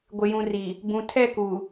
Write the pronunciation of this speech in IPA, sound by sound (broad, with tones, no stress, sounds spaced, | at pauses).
ɡʷ ɪ˨ j ũ˨ r i˨ | b ũ˨ tʰ ɛ˦˨ k u˨